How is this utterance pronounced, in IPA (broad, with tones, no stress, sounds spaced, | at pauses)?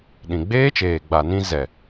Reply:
ɗ ĩ˨ ɡ͡b eː˦ t͡ʃ eː˨ ɡ͡b a˨ n ĩ˦ z ɛ˨